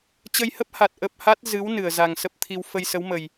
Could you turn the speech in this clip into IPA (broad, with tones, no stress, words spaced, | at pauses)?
t͡ɕə˧jhə˦˥p̚ha˨˩t̚ ʔə˦˥p̚ ha˦˥t̚ zɨ˨˦w nɨ˧˩ə̯za˨˩ŋsə˦˥p̚t̪ʰi˧w fə˧jsə˨˦wmə˨˩j